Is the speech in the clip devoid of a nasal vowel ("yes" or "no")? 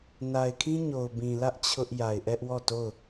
no